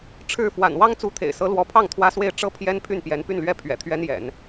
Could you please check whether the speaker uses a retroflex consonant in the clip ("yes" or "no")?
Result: yes